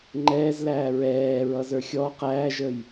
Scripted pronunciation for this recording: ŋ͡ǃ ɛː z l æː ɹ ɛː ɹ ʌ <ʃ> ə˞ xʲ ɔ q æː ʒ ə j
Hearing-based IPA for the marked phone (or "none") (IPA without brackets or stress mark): z